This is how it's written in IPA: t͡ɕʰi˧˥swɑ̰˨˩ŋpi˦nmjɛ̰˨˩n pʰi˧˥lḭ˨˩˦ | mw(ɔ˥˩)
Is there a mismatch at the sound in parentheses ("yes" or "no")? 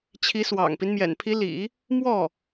no